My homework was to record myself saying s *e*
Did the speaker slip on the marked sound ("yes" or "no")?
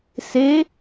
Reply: no